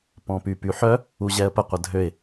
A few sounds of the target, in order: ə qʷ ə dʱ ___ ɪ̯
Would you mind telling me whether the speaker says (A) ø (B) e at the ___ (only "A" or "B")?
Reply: A